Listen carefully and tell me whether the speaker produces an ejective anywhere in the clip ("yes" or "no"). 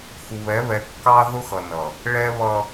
no